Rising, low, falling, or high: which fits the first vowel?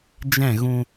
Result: falling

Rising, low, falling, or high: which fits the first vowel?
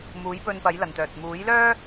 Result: rising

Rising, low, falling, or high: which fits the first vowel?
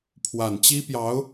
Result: low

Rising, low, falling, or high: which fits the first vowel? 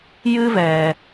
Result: high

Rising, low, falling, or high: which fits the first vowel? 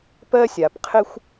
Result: high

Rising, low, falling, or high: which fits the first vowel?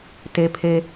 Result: low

